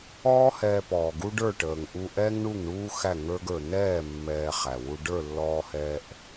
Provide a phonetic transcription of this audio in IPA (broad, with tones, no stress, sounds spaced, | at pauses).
ɔː˦ h ɛː˧ p ɔː˨ ɡ u˦ ɖ ə˞˦˨ ʈ əː˨ ŋ ʔ u˧ ʔ ɛ˦ ŋ ɳ u˦˨ ŋ ɳ uː˦ x æ˦˨ ŋ ə˞˦ ɡ ə˞˧ n ɛː˦˨ mː ɛː˧ χ æ˨ w u˧ ɖ ə˞˦˨ lː ɔː˧ h ɛː˧ ʔ